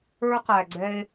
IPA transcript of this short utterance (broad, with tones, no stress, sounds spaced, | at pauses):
ə˞˧ q æ˨ ɡ͡ǀ ɛ˧ e̯